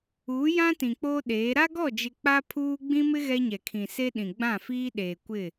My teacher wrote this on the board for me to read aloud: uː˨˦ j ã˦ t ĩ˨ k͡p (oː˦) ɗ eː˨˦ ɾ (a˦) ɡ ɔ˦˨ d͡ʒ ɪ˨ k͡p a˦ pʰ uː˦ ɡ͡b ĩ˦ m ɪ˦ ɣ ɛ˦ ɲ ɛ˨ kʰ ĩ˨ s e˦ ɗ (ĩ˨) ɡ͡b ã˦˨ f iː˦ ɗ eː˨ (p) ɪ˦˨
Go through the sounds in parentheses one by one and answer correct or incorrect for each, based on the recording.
correct, correct, correct, incorrect: kʷ

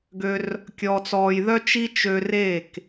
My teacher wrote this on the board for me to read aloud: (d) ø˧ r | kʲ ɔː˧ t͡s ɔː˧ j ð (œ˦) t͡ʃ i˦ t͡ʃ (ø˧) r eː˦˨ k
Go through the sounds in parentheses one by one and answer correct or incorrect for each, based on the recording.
incorrect: ɡ, correct, correct

